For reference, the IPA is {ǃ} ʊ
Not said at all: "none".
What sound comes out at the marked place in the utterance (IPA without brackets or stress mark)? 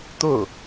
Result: t̪